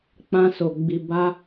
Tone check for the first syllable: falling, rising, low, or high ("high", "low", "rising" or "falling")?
high